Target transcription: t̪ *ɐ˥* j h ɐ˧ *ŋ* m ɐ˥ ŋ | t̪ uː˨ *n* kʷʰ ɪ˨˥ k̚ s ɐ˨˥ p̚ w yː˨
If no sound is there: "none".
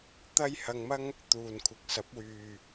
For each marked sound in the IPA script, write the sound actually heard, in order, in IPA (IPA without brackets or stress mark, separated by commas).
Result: ɐ˥, ŋ, n